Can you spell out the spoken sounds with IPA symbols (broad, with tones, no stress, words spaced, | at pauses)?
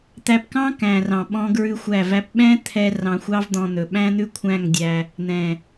t̪æ˧pkɑ̃˦ kæ̃˨rɑ̃˨ ɓɔ̃˦ɡɹʉ˦xʷæ˦˨væ˦p ɓɛ̃˦t̪ʰɛ˧ rɑ̃˧xʷɑ˦vd̪ɔ̃˧n̪ɵ˨ ɓæ̃˦n̪ʉ˦kʷʰæ̃˦˨ŋdʲæ˧ | n̪ɛ̃˨